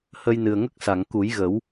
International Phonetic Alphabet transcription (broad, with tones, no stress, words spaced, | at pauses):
hə˧jnɨ˨˩ə̯ŋə˦˥k̚sa˨˩˨ŋ ku˨˩˦jɣə˨˩˦w